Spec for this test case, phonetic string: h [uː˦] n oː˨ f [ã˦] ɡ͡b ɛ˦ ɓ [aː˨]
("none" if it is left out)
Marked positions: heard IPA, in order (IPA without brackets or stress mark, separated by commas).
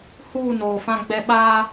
uː˦˨, ã˦, aː˦